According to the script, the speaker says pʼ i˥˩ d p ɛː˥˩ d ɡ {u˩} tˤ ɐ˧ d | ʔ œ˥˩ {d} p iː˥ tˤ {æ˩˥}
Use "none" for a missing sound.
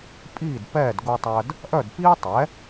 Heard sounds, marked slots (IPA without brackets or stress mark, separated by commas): u˧, d, ɛ˩˥